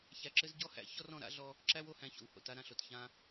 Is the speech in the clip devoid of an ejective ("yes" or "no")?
yes